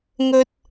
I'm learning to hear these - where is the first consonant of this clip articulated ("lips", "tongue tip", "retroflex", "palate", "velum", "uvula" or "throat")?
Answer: velum